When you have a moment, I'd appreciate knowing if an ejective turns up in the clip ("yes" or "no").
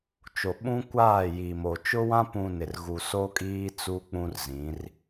yes